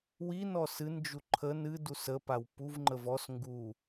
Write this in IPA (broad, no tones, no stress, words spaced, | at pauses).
winɔ sɨnd͡ʒu ǃʰən ɨdus əpaw puvŋ͡ǃəv ɔs ŋɡu